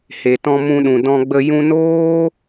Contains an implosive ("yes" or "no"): yes